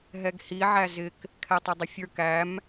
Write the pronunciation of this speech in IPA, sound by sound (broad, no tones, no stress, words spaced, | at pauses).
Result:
ɦɛɡhi ʕæzɪk | kʰɛtˤɪdˤɪfʲə˞k æm